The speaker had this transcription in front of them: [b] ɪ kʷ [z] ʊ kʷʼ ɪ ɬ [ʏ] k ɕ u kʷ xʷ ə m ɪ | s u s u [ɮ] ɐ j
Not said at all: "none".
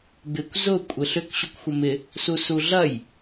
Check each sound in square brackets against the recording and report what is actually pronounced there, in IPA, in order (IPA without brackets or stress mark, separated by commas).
b, z, ʏ, ɮ